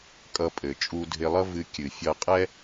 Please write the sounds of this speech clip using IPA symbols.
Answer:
kʼ ʌ˧ pʼ ɘ˩ t͡ʃʼ u˧ dʱ ɪ˧ lˠ ʌ˥ v ɨ˧ kʲ ɨ˩ fʲ ʌ˧ qʼ ɛ˥

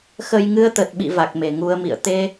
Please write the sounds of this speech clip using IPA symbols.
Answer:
x ə˧ j ŋ ɨ˧ ə̯ t̪ ə˨˩ t̚ ɓ ḭ˧˨ v a˨˩ k̚ m e˧˩ ŋ u˧ ə̯ m ḭ˧˨ ə̯ t̪ e˧

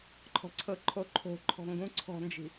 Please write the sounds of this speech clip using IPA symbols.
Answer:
ǃʰ ɔ̤ ǀʰ ɤ ǃʰ o ǃʰ o̤ ǃʰ ɔ̤ ŋ ɡ ũ ǀʰ ɔ̤ n d͡ʒ i̤

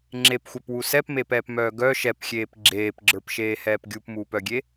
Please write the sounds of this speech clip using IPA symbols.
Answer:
ŋ͡ǁ e p xʷ œ p w u s ɛ p m e p ɛː p m œː ɡ œ ʃ ɛ p xʲ eː p ɡ͡ǁ eː p ɡ͡ǁ ə˞ p ʃ eː h ɛː p ɡʲ u p m uː p œ ɡʲ e

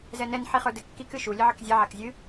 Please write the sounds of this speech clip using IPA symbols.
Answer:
z ɛ n ɛ n ħ i χ ə˞ d ɘ kː i k ɨ ʃ u lʲ ɘ ʕ ɘ k zʲ ɛ ʕ a k zʲ ɨ

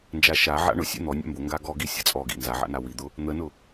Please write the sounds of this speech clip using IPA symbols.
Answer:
n d͡ʒ a ʃ a ʕ a̰ ɳ ʊ sʲ ɛ̰ n̪ ɔ nʲ a̰ m b ʊ ŋ ɡ a ɡ ɔ ɡ i sʲ a̰ t͡sʼ ɔ ɡ ḭ n z a ʕ a̰ n a w i d̪ ʊ | n̪ ə n ʊ

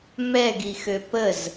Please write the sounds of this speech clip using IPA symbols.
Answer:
m ɛ ɡ i x ø p ə z

